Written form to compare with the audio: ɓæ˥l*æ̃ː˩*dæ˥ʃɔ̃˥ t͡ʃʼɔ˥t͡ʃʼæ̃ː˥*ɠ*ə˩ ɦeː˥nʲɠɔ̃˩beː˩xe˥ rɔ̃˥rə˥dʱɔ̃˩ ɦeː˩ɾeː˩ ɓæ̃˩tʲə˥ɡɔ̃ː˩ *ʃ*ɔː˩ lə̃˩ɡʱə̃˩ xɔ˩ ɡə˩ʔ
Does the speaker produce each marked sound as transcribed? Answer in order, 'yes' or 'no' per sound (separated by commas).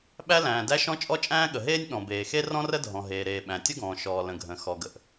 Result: yes, yes, yes